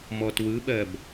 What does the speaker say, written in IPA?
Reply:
m ɔ t w ɯ ɓ ɜ b

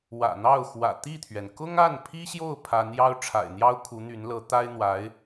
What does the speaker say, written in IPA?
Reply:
w ä̰˨˩ n̪ ɑ˥˩ ʊ̯ x w ä̰˨˩ t̪ i˥˩ t̪ʰ ɥ ɛ˩ n k ʊ˥ ŋ a˥˩ n pʰ i˥ ɕ j o˥˩ ʊ̯ pʰ a˧˥ n j ɑ˥ ʊ̯ ʈ͡ʂʰ a̰˨˩ ɪ̯ n̪ j ɑ˥ ʊ̯ kʰ u˧˥ n̪ y˧˥ n l ɤ˧˥ t̪ a˥ ɪ̯ n̪ w a˧˥ ɪ̯

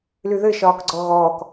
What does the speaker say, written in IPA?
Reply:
l y ð ɘ ʃ ɒː k ɡ͡ǀ ɔ ɣ ɔː k

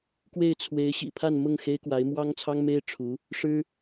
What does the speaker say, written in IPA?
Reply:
k w e˥˩ ɪ̯ t͡sʰ w e˧˥ ɪ̯ ɕ ḭ˨˩ pʰ a˥˧ n m ʊ˥˩ ŋ x e˥ ɪ̯ k w a˧˥ ɪ̯ m w ɑ˥ ŋ t͡sʰ ɑ˥ ŋ m e˥ ɪ̯ ʈ͡ʂʰ u˧˥ | ʂ ɻ̩˥

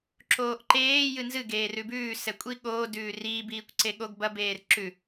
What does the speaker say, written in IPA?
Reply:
ǁ oː ʔ ǃ eː j ɨ n z ɨ ɡ eː r ʉ b ʉː s ɛ kʷʼ i ɠ oː d ʉː r iː b iː kʷ ǀ e ɠ o ɡ b ɐ b eː r ǁ ʉ

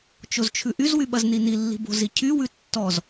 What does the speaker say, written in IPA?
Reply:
t͡ʃ o z t͡ʃʰ ʉ ʔ y z w y ɓ ɐ z n i n i lː i̤ b o̤ z i cʰ y w ʉ tː ɔ z

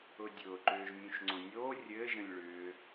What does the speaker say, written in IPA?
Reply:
ʊ dʲ ʊː ǃ ʏː ʒ mʲ ũ ʃ ŋ͡ǀ õ nʲ oː rʲ ɘ ʒ ə̃ lʲ ɭ ʏː

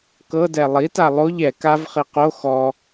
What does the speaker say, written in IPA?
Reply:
k ɤ d ɛ lˠ i t a lˠ o ʎ ɛ k a v χ i q o x ɔ

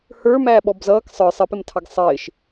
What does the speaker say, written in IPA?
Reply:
h ə˞ m æː ɓ ɔ b z ʌː k sˤ ə˞ sˤ ɪ p ɪ m tʰ ɑ ɡ sˤ ɪː ʃ

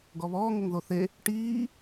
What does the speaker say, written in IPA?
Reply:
ɡ ɔ β ɔː ŋ ʊ ŋ ð o θ e | ʈ iː

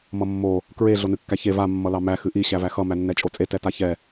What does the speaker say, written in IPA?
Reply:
m ʌ mː o | k ɹ e ɮ o n ɨ kː æ ç e v a mː ʌ l ɑ m æ x ɨ ʔ i ɕ æ v æ x ʌ m æ nː ɛ t͡ʃʼ o t͡sʼ e t ɛ t a ç ɛ

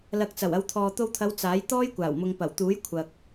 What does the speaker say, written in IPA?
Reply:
l ɐ˨ k̚ t͡s ɐ˨˩ w ɐ˨˧ w t̪ʰ ɔː˨ t̪ o˧ w t̪ʰ ɐ˨˧ w t͡s aː˨˥ j t̪ ɔː˥ j kʷ aː˨˩ w m ʊ˨ ŋ p ɐ˨˩ w t̪ uː˨˥ j kʷʰ ɐ˨ k̚

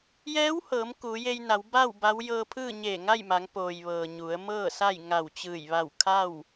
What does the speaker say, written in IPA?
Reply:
j ɛː˧˥ w h ɤː˩˧ m k uː˩˧ j e˧ j n a˩˧ w b a˥˨ w b a˧˥ w j ɤː˧ pʰ ɯː˥˨ ɲ eː˧˩ ŋ a˥˨ j m a˩˧ ŋ p oː˩ j ʋ ɤː˩ ɲ u˩˧ ə̯ m ɤː˥˨ s a˥˨ j ŋ a˧˩ w t͡ɕ ɯː˧˩ j ʋ a˧˩ w kʰ a˥˨ w

